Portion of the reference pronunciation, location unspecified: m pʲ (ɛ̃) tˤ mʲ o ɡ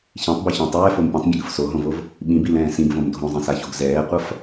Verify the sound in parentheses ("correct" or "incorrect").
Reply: correct